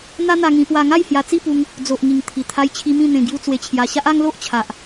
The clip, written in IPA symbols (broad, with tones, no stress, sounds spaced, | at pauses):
n̪ a˦ n̪ a˧ ŋ ĩ˧ p w a˧ ŋ a˥˧ j h j a˧ t͡s i˥˧ p u˧ ŋ | d͡z o˨ ʔ ŋ i˨˩ ŋ t̪ʰ i˨˩ t̪ʰ a˧ j t͡ɕʰ i˧ m ĩ˥˧ n̪ ẽ˧ ɡ j u˧ t͡s w e˧ t͡ɕʰ j a˧ ɕ a˦ ʔ a˦ ŋ l o˦ ʔ t͡ɕʰ a˨ ʔ